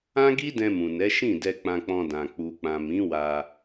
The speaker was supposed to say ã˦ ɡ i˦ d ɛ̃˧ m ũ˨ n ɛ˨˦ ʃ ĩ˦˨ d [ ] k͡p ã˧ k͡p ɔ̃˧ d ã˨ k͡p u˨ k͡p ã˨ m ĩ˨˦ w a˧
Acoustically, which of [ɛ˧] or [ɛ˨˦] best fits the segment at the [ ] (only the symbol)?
ɛ˧